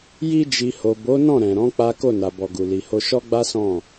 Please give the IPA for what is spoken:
ji˧d͡ʒi˨ho˨bo˨˦ nɔ̃˦˨ɾɛ̃˨ɾɔ̃˨˦ k͡pa˦ ko˦˨na˨bɔ˨ɡu˨ li˨ho˧ ʃɔ˦ɡ͡ba˦sɔ̃˦˨

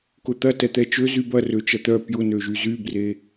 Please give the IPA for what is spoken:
kʊt̪ɐ tɛt̪ɛt͡ʃø zybɐ røt͡ʃɐt̪œ pjʊnøʒy zybre

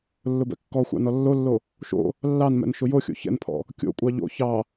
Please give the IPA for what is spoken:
lːʊbɛ̰kːɔxʷɑ̰ nɔlːolːo | ʃo̰ | lːɑnmɛ̰n ʃʊjoxʲo̰ çɛ̰npʰɔ̰ | kʲo̰kʷʼɑ ʎo̰ çɑ

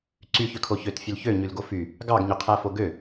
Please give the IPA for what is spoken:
ǀyçøkʰo çøtfʲøl çøɲylɡo fy | ɡɑɡɲøqʰæfo ɡø

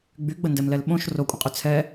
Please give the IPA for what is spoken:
ɡ͡byɡ͡bəndɛmlɛl ɓõʃ rokʷʼə̃qʼy t͡sʰɛ

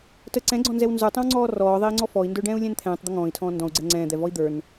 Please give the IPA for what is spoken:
tə ǀɛ̃ɡ͡ǀɔ̃nzɛw nzə˞tˤə̃wŋ͡ǀɔː rɔːðˤɛi̯ŋ͡ǀɔ fɔi̯ndə˞ɖɛ̃ːu̯lʲɛ̃n t̪ʰɛ̃ːtˤd̪ə ŋɔ̃ːi̯tʰɔ̃ː ndɔ̃u̯ɡ͡ǀɛ ŋ͡ǀɛ̃ːd̪ɛvɔi̯ d̪ə˞n

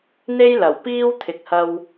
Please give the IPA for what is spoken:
n̪e˥jlɐ˨˩wpiː˥w t̪ʰɪ˨k̚hɐ˧w

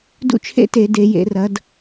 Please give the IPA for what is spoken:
dṵ˥˨t͡ʃʰḛ˥˨te˧˩˧ de˩˧jḛ˩˧ rɐ˩˧d

